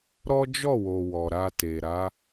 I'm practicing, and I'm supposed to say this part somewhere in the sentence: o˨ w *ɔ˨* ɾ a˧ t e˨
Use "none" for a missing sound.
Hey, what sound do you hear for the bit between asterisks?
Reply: ɔ˨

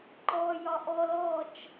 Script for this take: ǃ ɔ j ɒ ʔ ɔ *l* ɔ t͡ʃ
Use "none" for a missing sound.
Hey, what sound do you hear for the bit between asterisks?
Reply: l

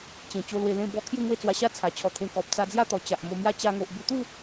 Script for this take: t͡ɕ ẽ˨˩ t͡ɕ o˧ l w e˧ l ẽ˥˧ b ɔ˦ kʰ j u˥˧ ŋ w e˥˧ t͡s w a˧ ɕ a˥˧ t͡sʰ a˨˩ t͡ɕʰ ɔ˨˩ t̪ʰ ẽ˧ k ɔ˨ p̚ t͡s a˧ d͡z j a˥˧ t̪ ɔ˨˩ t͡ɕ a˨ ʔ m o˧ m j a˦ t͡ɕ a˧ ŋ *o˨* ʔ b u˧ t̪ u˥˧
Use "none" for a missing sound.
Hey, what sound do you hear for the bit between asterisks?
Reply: o˨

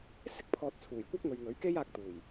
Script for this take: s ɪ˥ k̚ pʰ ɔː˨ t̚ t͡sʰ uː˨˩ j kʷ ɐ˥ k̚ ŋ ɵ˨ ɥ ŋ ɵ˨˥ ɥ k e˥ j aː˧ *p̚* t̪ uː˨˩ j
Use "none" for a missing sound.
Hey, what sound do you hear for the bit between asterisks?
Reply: k̚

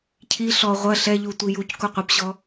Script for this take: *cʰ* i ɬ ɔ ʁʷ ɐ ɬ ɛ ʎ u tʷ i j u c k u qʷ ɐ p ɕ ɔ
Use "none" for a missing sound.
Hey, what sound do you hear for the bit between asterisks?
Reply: cʰ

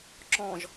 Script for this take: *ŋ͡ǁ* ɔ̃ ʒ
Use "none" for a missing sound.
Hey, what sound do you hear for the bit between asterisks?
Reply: ǁ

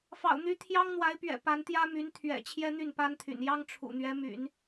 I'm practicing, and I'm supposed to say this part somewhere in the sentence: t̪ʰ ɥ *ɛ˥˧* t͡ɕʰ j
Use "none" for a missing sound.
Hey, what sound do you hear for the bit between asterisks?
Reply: ɛ̰˨˩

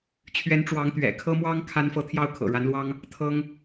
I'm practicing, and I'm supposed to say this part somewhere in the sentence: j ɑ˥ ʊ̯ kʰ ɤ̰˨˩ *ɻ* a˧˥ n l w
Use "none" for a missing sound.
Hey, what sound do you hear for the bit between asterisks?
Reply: ɻ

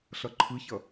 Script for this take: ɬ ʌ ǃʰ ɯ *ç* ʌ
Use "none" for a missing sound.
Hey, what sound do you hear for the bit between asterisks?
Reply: ç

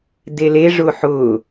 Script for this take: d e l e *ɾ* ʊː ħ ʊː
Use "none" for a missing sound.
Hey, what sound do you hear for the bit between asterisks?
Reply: ʐ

